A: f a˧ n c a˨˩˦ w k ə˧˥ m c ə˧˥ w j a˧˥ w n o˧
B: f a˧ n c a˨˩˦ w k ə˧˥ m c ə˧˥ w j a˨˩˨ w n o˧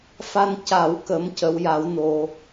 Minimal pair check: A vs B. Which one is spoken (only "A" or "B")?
A